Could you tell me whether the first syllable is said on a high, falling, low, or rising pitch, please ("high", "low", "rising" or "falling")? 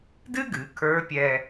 high